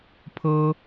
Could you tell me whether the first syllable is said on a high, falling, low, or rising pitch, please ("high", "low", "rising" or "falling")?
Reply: high